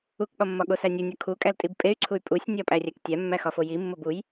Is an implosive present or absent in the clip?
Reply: present